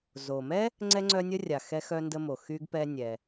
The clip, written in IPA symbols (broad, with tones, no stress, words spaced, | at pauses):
zo˩mɛ˥ | ŋ͡ǀɛ˥ŋ͡ǀœ˥nʲə˥rʲa˩ xɛ˥xœ˥ndə˥mo˩ xy˥ɡpɛ˥nʲɛ˩